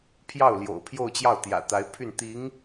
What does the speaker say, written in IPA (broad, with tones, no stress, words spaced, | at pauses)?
pʰjɑ˥˩ʊ̯ljo̰˨˩ʊ̯ pʰjo˥˧ʊ̯t͡ɕjɑ˥˩ʊ̯ t̪jä̰˨˩t̪a˧˥ɪ̯pʰy˥˩n t̪i˧˥ŋ